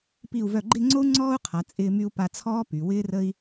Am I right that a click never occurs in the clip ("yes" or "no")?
no